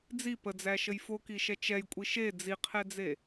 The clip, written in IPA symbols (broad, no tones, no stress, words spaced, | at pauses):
d͡zi pəd͡zæʃəj fokiʃɛ t͡ʃɛjkʷʼi ʃe d͡ziqʰɛd͡ze